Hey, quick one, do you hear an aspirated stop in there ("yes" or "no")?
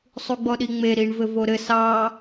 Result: no